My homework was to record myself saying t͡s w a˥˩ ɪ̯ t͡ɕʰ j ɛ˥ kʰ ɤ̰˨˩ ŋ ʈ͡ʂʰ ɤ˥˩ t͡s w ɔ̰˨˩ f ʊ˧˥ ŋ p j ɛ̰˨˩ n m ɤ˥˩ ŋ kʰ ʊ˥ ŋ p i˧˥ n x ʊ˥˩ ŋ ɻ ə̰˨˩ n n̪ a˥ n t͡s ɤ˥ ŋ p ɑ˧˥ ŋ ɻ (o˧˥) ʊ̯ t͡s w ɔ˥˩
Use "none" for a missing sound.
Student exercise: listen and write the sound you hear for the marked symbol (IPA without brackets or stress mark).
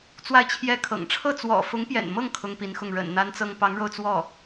o˧